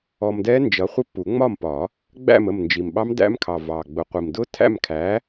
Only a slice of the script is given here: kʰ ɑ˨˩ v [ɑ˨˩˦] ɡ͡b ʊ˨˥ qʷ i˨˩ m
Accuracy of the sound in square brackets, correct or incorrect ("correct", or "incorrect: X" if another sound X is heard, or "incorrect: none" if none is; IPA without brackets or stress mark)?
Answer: incorrect: ɑ˨˩